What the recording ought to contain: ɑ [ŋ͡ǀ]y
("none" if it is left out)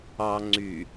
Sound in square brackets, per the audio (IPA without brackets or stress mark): ŋ͡ǀ